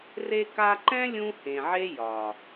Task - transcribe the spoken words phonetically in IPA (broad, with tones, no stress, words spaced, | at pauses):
re˧ka˧ǃɛ̃˦ lʲũ˦hẽ˨ʕe˦jɒ˨